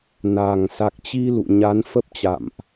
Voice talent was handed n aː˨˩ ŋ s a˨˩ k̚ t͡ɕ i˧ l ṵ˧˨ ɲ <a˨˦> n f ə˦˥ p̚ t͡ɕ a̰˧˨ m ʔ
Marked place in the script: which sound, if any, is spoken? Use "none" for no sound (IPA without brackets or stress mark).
a˨˦